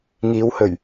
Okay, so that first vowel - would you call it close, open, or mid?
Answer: close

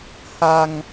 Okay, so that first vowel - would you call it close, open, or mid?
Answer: open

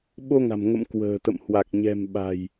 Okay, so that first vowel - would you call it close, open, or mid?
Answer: mid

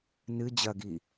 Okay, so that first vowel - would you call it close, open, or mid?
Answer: close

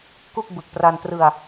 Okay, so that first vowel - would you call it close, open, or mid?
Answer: close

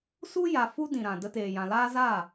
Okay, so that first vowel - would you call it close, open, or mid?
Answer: close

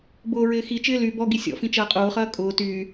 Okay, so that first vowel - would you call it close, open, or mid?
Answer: close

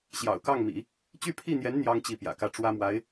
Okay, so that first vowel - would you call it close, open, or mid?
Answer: open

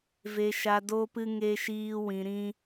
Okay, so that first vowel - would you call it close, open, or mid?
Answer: mid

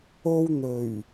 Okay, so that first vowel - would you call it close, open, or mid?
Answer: mid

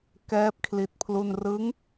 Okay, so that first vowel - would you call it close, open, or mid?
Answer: mid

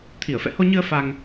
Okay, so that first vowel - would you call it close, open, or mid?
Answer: close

